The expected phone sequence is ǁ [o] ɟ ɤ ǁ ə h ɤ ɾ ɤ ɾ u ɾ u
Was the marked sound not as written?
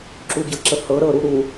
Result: yes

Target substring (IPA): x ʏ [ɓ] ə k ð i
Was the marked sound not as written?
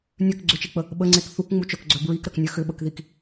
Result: no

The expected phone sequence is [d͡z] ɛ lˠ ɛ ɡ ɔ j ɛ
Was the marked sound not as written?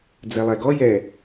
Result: no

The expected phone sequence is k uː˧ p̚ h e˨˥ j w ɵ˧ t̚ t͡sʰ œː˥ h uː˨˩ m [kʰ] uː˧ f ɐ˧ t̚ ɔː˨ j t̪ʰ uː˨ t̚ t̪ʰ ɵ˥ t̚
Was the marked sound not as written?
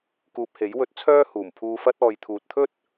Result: yes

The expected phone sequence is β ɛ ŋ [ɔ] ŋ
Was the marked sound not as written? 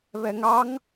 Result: yes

